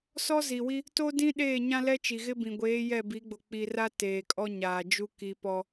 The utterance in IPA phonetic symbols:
s ɔ˦ z i˨ w i˦ | t o˦ d ĩ˦ ɗ eː˦˨ ɲ ã˦ l ɛ˦ t͡ʃ i˨ ɣ ɪ˦ b ĩ˨ ɡʷ eː˨˦ j ɛ˦˨ b i˨˦ ɡ͡b o˨ k͡p i˨ r a˦ t eː˨ kʼ ɔ˦ ɲ aː˨ d͡ʒ u˦ k i˦ p ɔ˦

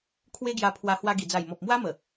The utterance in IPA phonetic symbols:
kʰ w e˦ ɡ j a˧ pʰ w a˧ h w a˧ ɡ i˨˩ d͡z a˨˩ j m ɔ˨ p̚ m w a˦ m ə˨˩

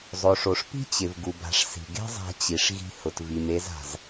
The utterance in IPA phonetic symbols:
zˤ o˩ ʂ o˩ ʂ p i̤˥ t͡ɕ ɪ˩ v ɡ u˩ b a̤˩ ʂ s i̤˩ ɡ e̤˥ zˤ a̤˧ t͡ɕ i˩ ʂ ɣ i̤˧ h ʊ˩ t v i˩ m e˧ z a̤˩ z

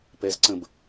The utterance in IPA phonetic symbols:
p ɛ z ǀ ə̃ b

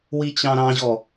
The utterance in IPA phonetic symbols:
w i t͡ɕ ɑ̃ ɾ ɑ̃ ʑ ɔ

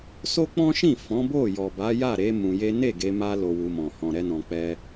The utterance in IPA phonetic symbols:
s o˦ k͡p ɔ̃˦ ʃ ĩ˦˨ f ɔ̃˨˦ b o˦˨ j ɔ˨ b a˨˦ j a˦˨ ɾ e˨˦ m ũ˧ j e˦ n e˦˨ ɡ e˧ m a˧ l o˧ w u˧ m ɔ̃˨ h ɔ̃˨ ɾ ɛ˧ n ɔ̃˨ k͡p ɛ˧

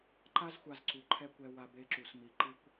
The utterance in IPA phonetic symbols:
ǃ a˦ z xʷ a˧ z ǀ u˨ ǃʰ ɛ˧ kʷ ɛ˧ w a˧ b e˧ ǁ u˨ s m i˨ ǃ ɯ˧ kʷ

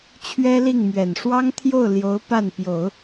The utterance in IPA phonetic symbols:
t͡ɕʰ ɥ ɛ˥ l i˥˩ ŋ m ɥ ɛ˨˩ n ʂ w ɑ˥ ŋ t̪ʰ j o˥˩ ʊ̯ l j o˧˥ ʊ̯ p a˥˩ n p j o˨˩˦ ʊ̯

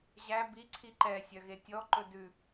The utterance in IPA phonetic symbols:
ʑ æ b i ǀʰ i ǃ ɛ sʲ œ ɣ e tʲ ɔ ǃ ɵ d ʉ

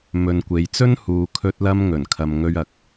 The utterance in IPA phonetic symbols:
m ɵ˨ n kʷ e˨ j t͡s ɵ˥ n h uː˨ kʰ ɵ˧ t̚ l ɐ˧ m ŋ ɵ˨˩ n kʰ ɐ˨ m ŋ ɵ˧ ɥ ɐ˨˥ k̚

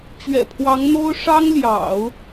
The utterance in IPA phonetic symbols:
t͡ɕ ɥ ɛ̰˨˩ pʰ w ɑ˧˥ ŋ n̪ o˥ ʊ̯ ʂ ɑ˥ ŋ l j ɑ̰˨˩˦ ʊ̯

